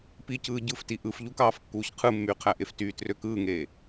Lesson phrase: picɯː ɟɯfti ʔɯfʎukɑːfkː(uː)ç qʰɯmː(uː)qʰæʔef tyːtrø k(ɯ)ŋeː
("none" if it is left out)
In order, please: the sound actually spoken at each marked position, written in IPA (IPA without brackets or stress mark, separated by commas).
uː, yː, ɯː